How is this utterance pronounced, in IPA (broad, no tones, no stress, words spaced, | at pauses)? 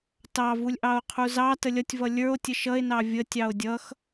tɑvulʲ ʔɑo̯qʰuzɑ təlʲʌtʲvʌ lʲə˞o̯ tʲəʃʌe̯nɑ vʲə tʲɑo̯dʲʌx